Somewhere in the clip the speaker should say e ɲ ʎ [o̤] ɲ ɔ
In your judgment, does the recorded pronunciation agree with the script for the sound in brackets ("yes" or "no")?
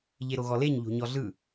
yes